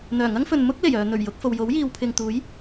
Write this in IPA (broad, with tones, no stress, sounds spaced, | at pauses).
n̪ œː˨˩ ŋ ɐ˥ ŋ f ɵ˨ n m ʊ˥ k̚ l e˨˩ j œː˨ n̪ ɵ˨˩ ɥ j ʊ˨˥ k̚ f o˨ w j o˨˥ w j iː˨ w pʰ ɪ˨ ŋ t̪ uː˨˥ j